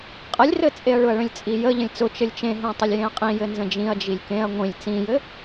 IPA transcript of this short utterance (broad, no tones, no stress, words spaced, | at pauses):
qʼəlʲrɘt͡sʼeɐ̯ ɭʊɐ̯ɭə̃lʲt͡sʼijə ʎə̃lʲt͡sʊ t͡ʃɘlʲt͡ʃẽɦẽ tˤʊlʲjẽɐ̯qʼĩ jɘnzə̃d͡ʒĩɐ̯ d͡ʒilʲkẽɐ̯ ŋʷĩlʲ t͡sĩjɘ